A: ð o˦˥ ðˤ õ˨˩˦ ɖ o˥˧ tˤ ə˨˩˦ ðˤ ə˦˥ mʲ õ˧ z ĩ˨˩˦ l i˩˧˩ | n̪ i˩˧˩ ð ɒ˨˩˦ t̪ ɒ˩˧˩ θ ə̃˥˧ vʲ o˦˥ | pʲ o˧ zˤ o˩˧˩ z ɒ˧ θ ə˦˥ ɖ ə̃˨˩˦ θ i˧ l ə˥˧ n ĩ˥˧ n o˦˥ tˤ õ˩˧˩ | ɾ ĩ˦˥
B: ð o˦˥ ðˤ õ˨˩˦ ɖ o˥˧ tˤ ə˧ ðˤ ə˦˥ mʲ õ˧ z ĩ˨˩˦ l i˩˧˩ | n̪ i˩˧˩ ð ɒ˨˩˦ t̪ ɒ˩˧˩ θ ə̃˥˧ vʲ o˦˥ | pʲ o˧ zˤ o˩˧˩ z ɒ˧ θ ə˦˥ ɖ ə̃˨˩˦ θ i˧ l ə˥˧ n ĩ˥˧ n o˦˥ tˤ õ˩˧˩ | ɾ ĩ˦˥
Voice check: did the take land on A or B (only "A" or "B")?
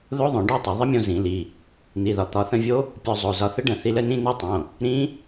A